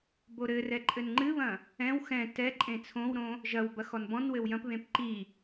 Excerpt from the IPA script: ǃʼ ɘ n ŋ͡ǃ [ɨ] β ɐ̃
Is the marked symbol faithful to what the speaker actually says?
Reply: yes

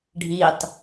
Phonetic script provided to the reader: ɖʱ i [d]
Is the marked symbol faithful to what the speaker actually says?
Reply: no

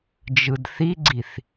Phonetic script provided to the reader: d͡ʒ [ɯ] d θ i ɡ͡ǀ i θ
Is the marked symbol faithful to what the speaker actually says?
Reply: yes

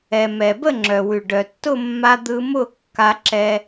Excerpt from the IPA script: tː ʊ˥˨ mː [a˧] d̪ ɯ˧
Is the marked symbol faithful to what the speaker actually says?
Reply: yes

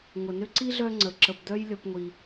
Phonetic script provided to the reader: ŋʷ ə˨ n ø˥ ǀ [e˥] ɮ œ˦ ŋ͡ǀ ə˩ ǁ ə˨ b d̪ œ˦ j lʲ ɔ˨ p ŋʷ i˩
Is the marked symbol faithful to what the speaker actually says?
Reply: no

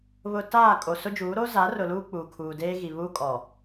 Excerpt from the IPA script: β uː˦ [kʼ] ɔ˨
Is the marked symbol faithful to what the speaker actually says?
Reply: yes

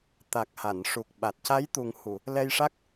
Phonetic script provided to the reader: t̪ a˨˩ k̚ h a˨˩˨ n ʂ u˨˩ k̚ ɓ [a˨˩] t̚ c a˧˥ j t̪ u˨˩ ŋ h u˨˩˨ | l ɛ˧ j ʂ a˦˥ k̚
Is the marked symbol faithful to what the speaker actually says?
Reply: yes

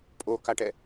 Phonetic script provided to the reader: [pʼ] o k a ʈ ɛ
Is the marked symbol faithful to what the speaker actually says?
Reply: yes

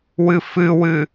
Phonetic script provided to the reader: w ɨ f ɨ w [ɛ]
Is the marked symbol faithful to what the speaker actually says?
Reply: no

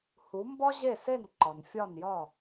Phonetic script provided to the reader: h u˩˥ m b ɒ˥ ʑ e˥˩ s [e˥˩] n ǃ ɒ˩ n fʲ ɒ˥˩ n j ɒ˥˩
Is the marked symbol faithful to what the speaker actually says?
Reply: yes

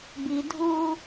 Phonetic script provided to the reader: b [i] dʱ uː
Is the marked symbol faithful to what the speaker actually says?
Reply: yes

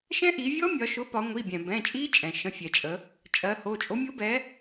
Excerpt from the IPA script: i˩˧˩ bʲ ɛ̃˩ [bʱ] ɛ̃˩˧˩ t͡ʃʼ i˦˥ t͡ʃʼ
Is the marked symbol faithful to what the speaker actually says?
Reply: no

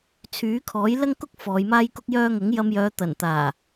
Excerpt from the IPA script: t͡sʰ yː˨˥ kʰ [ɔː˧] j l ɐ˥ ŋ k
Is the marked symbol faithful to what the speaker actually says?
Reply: no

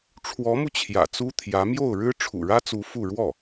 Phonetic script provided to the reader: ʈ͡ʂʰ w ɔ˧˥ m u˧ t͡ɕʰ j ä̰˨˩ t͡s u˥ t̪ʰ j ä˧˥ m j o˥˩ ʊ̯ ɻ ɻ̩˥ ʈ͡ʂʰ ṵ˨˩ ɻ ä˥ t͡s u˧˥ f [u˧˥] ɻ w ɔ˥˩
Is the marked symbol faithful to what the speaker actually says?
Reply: no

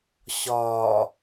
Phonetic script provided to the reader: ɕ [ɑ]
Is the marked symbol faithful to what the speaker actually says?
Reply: no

